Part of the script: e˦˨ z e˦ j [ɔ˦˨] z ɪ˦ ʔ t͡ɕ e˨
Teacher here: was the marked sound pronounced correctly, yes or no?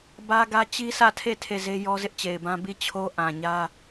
no